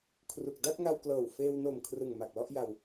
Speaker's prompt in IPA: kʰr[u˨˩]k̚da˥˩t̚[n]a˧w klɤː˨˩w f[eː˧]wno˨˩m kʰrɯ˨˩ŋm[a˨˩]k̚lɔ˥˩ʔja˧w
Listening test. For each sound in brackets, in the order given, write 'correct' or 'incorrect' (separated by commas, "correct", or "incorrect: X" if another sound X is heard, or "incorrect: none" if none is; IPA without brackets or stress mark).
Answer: correct, incorrect: ŋ, correct, correct